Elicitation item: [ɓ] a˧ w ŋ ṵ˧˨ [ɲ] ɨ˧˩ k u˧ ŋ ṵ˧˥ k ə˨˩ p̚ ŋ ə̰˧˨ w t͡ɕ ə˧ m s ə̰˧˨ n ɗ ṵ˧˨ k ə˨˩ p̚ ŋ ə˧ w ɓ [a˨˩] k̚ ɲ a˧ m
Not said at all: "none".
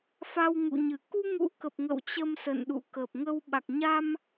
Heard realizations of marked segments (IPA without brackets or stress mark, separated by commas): f, ɲ, a˨˩